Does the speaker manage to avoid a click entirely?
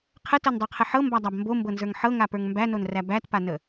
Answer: yes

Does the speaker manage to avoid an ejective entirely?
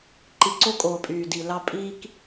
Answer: no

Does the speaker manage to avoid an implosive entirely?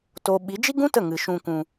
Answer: no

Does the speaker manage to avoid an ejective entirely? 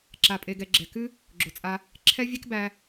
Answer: no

